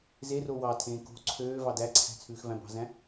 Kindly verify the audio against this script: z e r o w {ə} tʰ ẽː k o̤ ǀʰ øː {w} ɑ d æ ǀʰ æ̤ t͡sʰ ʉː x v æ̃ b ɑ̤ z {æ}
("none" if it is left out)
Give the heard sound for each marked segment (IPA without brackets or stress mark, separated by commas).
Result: ɑ, v, æ̃